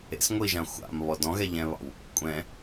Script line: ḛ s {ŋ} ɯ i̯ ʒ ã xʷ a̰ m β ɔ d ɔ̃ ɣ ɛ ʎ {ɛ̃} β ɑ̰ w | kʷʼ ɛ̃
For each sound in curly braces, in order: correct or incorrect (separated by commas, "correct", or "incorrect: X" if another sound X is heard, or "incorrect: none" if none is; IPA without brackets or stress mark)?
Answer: incorrect: ŋʷ, correct